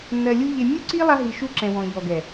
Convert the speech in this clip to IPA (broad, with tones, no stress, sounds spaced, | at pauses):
nː ɜ˧ lʲ u˦ ʎ e˧ mʲ u˦ ǀ i˦ lˠ a˦ ɦ i˧ ʃ u˦ ǁ ɛ̃˨ w ɔ̃˨ ʎ ɔ˨ ɡ ɛ˨